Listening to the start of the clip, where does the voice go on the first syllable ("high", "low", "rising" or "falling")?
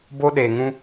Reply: high